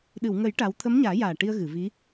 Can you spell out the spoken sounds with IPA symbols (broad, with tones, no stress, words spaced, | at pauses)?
ɗɨ˨˩˨wŋə˨˩˦j ʈa˧˥w t̪ʰə˧˥mɲaː˨˩˦jaː˨˩ ʈi˧ə̯ɣɨ˨˩˨ vi˧˥